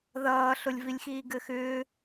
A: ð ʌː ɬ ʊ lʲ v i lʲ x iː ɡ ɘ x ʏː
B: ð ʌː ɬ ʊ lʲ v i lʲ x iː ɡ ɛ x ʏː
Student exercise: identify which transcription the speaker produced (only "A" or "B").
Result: A